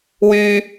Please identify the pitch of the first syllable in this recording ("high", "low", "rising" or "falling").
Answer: high